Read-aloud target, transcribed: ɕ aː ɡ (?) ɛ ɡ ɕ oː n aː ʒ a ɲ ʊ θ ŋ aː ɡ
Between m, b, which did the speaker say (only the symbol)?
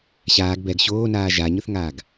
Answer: b